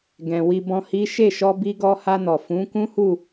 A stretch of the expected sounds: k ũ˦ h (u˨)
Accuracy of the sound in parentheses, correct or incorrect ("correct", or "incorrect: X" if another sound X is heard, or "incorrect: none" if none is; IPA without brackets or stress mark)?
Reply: incorrect: u˦˨